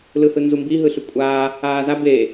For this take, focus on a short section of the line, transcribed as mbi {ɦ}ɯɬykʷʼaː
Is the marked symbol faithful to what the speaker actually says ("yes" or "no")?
yes